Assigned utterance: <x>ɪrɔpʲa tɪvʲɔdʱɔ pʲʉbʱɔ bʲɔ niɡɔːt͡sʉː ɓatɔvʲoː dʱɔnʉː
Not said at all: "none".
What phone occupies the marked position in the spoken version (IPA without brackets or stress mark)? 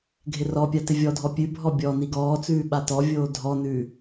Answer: ɡʱ